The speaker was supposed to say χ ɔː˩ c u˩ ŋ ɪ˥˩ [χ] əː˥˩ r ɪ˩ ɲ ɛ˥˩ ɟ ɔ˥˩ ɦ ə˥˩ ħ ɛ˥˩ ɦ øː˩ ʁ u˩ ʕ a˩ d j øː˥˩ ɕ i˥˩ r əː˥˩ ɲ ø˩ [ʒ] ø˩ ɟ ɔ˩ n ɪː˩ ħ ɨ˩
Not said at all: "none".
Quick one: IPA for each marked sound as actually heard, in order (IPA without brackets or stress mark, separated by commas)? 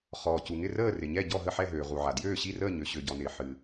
r, ɕ